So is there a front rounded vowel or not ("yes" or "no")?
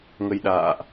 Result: no